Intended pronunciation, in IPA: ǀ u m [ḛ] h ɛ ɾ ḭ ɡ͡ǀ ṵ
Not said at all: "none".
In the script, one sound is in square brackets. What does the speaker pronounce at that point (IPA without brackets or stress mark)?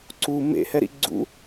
ḛ